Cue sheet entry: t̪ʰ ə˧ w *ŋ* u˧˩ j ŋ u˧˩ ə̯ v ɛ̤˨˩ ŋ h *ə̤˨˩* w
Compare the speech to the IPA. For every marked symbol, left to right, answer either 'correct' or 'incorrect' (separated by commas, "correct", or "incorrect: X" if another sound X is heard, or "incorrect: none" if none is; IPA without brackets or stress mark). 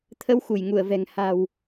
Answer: incorrect: x, incorrect: a̤˨˩